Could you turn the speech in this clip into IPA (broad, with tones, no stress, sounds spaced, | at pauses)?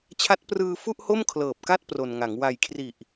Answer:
t͡ɕʰ a˦˥ t̚ p r ɯː˧ f u˥˩ ʔ h o˥˩ m kʰ l ɤː˨˩ p̚ k a˥˩ t̚ p r o˨˩ n ŋ a˩˦ ŋ w a˨˩ j kʰ r i˨˩ ʔ